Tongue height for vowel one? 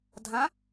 low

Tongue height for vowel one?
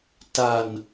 low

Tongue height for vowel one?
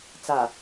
low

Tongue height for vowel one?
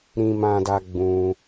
high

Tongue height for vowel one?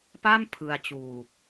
low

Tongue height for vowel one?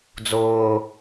high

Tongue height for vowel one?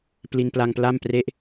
high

